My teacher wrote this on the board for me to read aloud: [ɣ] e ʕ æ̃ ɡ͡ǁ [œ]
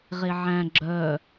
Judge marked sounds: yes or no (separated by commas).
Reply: no, yes